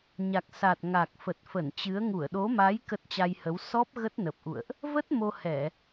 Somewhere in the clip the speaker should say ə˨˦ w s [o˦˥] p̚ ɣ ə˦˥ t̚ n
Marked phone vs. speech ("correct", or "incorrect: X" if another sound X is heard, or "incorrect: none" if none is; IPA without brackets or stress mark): incorrect: ɔ˦˥